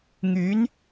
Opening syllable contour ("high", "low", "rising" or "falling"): rising